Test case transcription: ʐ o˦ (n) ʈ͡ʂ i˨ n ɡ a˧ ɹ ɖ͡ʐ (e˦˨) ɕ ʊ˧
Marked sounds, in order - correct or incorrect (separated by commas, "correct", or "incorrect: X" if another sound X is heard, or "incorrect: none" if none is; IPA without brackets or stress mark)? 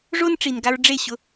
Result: correct, correct